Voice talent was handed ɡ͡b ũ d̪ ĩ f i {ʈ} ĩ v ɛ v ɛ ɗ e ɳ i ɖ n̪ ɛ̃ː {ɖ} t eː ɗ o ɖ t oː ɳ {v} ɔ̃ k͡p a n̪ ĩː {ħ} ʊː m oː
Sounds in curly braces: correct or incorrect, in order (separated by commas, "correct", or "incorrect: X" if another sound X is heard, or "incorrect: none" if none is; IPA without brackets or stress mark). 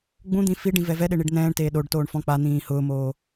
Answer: incorrect: ɖ, incorrect: ɳ, incorrect: f, incorrect: h